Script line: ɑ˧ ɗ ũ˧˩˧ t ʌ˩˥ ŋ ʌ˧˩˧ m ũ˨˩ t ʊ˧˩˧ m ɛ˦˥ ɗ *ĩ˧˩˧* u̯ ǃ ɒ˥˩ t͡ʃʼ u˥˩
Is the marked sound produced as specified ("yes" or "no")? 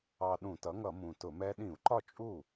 yes